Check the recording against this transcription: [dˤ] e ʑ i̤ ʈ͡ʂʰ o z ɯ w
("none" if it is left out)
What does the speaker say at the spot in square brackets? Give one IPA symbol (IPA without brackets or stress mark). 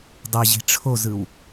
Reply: dˤ